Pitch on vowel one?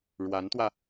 rising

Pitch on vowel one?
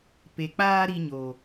low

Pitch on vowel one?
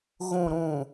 low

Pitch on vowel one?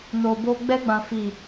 low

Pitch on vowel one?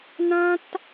high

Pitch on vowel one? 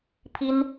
high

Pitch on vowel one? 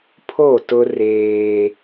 falling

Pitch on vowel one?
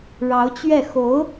rising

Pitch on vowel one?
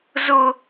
high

